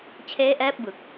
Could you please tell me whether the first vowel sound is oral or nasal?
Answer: oral